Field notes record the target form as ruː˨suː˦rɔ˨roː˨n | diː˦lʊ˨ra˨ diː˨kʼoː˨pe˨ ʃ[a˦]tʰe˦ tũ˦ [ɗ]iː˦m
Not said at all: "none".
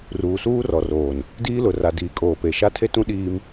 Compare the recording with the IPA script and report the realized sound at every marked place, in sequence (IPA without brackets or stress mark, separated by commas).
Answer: a˦, ɗ